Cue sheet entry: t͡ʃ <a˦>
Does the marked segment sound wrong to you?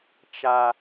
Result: no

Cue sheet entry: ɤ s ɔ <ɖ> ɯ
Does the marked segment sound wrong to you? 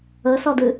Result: yes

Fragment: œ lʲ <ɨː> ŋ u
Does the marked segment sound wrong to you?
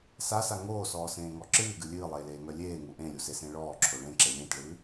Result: yes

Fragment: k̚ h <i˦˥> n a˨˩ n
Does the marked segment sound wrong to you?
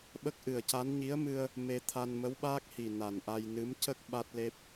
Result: yes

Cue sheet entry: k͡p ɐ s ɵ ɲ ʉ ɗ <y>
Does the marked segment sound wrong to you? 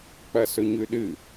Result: yes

